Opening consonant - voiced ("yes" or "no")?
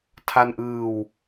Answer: no